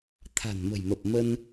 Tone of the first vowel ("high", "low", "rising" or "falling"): low